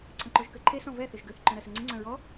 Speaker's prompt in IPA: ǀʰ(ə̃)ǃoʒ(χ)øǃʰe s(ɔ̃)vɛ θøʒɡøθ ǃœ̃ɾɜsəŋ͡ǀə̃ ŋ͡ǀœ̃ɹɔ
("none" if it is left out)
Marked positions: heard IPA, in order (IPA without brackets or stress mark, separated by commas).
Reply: ə̃, k, ɔ̃